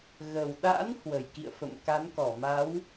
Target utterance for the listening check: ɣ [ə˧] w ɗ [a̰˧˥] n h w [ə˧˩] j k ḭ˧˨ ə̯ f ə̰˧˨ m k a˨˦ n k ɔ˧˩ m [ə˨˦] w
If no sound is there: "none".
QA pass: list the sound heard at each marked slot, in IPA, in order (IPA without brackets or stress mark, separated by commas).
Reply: ə˨˩, a̰˧˥, ə˧˩, a˨˦